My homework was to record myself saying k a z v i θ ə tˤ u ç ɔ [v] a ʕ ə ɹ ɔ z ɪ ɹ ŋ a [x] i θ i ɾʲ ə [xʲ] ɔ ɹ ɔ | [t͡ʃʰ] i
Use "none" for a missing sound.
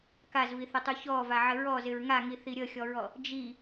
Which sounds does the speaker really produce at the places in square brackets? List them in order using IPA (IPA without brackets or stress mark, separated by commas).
v, ŋ, xʲ, d͡ʒ